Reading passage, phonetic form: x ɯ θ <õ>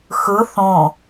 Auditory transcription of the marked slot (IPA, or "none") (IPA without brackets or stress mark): õ